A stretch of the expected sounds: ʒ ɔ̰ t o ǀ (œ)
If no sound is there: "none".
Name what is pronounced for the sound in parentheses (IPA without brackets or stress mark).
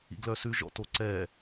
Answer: ɛ